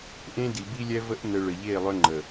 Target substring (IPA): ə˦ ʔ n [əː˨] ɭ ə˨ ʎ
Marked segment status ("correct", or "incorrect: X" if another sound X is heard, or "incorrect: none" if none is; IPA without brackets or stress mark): incorrect: ə˨